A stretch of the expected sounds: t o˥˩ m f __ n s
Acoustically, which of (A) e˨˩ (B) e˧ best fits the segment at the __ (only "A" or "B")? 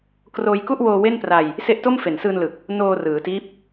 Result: A